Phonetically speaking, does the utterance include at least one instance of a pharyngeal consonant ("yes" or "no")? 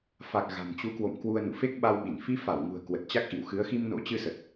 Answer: no